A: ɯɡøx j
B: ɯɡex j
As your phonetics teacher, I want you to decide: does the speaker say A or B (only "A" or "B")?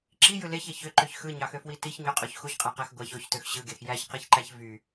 B